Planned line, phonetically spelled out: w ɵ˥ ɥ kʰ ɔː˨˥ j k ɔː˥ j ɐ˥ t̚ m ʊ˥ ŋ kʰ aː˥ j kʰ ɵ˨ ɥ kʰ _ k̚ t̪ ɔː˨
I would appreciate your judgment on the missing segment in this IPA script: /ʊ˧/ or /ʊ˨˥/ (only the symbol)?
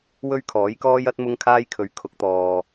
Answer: ʊ˨˥